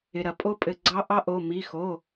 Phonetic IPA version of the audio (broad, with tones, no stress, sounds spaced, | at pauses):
ɪ˩ ɾ ɐ˩ pʼ o˧˥ pʼ ɘ˩˧˩ ɡ͡ǀ ɑ˧˥ ʔ ɑ˧˥ ʔ o˩˧˩ m i˩˧˩ x o˩˧˩